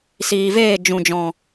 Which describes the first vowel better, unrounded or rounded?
unrounded